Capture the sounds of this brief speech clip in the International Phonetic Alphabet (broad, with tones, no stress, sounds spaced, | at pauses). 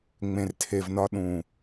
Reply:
ŋ͡m ẽ˧ r tʰ e˧ v n ɒ˦ ɗ ũ˨